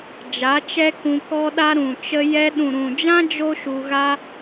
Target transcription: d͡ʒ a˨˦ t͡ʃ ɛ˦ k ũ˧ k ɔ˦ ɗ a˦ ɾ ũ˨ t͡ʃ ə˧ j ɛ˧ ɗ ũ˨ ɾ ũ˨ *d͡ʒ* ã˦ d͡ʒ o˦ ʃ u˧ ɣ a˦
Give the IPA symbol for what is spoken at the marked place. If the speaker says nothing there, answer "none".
d͡ʒ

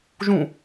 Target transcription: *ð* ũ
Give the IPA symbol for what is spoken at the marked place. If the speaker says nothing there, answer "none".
ʒ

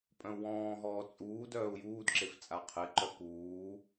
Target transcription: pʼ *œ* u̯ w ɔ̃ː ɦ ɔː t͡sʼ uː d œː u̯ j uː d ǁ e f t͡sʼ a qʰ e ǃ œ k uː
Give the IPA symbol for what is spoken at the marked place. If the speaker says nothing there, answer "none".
œ̃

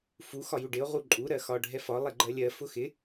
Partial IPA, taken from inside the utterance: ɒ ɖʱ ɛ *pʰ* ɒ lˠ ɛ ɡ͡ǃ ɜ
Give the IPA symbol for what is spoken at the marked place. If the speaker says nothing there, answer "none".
f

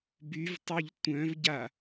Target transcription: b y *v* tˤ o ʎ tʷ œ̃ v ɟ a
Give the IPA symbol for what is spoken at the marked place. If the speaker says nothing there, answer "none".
v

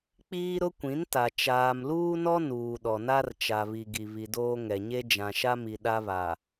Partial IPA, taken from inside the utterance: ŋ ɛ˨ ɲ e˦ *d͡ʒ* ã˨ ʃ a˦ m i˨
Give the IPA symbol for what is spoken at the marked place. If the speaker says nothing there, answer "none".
d͡ʒ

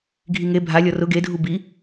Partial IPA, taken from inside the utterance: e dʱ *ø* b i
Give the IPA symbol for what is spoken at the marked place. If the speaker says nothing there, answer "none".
u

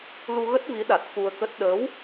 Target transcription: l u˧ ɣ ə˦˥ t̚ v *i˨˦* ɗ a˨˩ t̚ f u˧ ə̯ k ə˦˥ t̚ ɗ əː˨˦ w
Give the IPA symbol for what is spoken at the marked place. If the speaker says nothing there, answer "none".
i˨˦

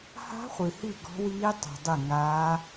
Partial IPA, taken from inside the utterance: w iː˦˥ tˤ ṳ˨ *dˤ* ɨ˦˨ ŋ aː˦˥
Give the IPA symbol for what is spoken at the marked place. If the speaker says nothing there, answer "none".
dˤ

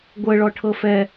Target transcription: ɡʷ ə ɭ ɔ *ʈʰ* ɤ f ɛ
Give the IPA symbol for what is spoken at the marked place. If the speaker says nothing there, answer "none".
ʈʰ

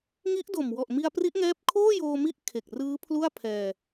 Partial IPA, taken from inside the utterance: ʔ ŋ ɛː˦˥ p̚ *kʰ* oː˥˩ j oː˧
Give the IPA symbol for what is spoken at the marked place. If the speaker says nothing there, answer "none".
kʰ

